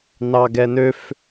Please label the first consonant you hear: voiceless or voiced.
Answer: voiced